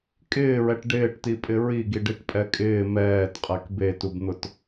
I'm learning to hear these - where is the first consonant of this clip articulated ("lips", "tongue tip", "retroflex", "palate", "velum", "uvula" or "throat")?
velum